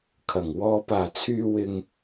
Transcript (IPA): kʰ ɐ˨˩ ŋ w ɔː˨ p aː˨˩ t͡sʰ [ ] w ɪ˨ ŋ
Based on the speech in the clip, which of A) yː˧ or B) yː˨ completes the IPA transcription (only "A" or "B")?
B